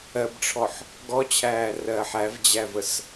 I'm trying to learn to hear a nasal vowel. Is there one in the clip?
no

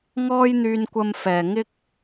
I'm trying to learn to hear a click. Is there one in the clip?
no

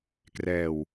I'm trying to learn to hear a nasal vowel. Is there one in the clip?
no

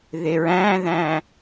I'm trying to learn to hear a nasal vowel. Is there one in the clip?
yes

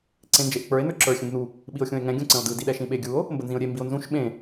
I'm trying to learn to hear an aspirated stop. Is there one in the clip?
no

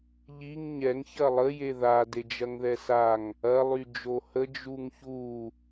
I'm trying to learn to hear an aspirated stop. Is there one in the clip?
no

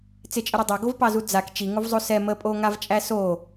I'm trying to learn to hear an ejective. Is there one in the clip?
yes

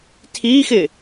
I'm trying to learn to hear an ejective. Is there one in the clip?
no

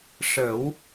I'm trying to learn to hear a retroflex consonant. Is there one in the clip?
yes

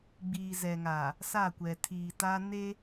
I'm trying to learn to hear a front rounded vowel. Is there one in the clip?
no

